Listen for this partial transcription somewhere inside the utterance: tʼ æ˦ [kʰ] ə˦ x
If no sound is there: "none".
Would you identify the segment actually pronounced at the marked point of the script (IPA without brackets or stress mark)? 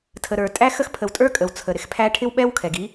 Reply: x